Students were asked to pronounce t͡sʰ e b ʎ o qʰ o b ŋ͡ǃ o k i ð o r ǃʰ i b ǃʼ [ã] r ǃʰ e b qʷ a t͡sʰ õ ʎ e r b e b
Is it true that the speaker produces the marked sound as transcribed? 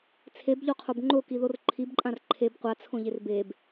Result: yes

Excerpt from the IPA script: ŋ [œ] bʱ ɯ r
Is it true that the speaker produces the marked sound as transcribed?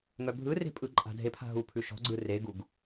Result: yes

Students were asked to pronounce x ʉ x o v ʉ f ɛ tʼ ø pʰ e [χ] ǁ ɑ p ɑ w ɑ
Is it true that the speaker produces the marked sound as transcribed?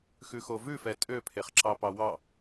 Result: yes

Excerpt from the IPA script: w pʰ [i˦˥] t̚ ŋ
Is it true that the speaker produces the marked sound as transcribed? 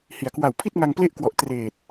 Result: no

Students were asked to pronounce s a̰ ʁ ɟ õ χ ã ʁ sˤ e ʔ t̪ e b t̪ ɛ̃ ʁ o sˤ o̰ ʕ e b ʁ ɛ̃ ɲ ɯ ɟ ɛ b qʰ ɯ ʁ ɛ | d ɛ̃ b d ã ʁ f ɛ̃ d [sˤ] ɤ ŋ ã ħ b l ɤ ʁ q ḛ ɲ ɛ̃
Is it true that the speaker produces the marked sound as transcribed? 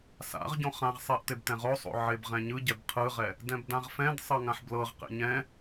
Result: yes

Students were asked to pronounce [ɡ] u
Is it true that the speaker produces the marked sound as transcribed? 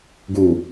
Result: yes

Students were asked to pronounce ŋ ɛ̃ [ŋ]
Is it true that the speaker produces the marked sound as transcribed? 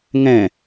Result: no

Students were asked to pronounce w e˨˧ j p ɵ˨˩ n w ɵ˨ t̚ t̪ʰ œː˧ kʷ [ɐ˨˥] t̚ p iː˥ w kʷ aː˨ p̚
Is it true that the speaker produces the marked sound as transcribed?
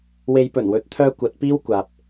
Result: yes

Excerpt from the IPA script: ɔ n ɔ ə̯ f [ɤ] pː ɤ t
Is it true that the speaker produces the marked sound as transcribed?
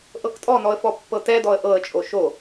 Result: no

